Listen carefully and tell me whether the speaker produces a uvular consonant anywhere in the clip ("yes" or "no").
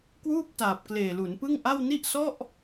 no